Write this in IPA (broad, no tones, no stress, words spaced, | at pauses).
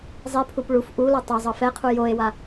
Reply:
zˤipʰup ɭuf ʔulɔ tˤa zˤɤfɛqʰu joe̯wa